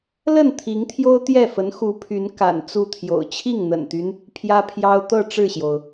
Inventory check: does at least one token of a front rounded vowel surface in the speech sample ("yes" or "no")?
yes